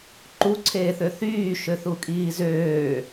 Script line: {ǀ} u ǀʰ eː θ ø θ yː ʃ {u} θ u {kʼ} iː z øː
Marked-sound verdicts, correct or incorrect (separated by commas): incorrect, incorrect, correct